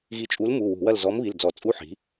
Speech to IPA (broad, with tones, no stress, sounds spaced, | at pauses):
ɣ i˧˥ t͡ʃʼ u˧˥ l m u˩˧˩ w ṳ˧˩˧ w ɐ˦˨ l z ɔ˧˥ m β i˩˧˩ l d͡z ɔ˧˩˧ t͡sʼ u˧˥˧ ħ i̤˩˥